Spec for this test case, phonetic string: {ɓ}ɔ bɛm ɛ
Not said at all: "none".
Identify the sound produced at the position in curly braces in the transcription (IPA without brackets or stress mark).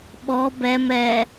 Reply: ɓ